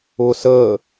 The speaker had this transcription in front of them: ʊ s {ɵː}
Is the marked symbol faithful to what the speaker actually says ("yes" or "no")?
no